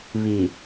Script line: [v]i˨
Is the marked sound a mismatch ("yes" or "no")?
yes